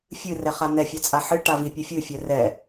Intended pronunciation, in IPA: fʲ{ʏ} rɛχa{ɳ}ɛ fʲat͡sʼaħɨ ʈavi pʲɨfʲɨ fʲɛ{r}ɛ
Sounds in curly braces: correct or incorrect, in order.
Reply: incorrect, incorrect, correct

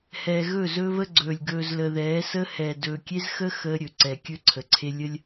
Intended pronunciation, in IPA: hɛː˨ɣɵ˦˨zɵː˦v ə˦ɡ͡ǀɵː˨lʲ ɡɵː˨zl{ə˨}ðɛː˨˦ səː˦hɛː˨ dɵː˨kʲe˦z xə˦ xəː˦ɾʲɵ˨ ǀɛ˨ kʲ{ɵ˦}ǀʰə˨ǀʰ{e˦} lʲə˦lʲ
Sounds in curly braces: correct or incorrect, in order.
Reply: correct, correct, correct

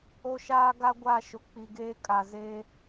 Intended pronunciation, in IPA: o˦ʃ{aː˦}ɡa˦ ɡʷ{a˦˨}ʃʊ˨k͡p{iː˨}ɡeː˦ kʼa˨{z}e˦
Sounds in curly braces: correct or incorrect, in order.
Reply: correct, correct, incorrect, correct

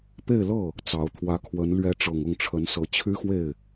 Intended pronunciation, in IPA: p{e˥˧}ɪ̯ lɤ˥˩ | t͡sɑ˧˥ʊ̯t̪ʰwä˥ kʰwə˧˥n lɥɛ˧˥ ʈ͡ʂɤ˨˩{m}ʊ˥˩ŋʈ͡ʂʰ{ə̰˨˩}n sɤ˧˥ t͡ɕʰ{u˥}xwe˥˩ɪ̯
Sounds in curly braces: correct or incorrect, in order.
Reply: correct, incorrect, incorrect, incorrect

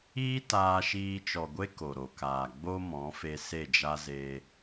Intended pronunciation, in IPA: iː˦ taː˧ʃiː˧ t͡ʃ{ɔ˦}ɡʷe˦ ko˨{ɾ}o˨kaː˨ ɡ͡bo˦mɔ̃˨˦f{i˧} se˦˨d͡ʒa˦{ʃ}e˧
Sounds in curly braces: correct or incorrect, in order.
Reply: incorrect, correct, incorrect, incorrect

